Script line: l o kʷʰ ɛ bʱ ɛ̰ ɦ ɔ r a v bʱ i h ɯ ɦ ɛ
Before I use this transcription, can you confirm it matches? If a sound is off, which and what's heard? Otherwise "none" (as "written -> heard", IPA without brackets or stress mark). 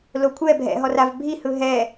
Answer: none